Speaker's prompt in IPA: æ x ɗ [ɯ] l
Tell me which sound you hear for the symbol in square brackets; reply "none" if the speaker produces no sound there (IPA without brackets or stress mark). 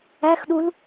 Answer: u